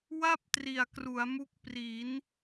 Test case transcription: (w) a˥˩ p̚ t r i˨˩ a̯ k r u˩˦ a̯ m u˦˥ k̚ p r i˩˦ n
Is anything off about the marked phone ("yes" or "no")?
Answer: no